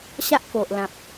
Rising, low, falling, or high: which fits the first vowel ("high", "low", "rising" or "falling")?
high